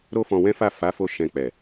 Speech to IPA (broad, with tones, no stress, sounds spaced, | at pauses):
ɾ o˦ f ɔ̃˧ w ɛ̃˦ f a˦˨ f a˨˦ f o˧ ʃ ɛ̃˧ k͡p ɛ˨